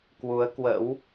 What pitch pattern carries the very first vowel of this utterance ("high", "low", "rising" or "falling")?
rising